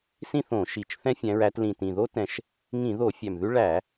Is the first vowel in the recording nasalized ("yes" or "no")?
yes